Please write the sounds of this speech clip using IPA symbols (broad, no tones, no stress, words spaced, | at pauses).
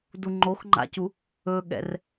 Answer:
duŋ͡ǃoxŋ͡ǃa̰cu | ɵɠɛ̰r